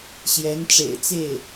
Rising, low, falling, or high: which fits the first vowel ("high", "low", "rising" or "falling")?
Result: rising